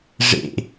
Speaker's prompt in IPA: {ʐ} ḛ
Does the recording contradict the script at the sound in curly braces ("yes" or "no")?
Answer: no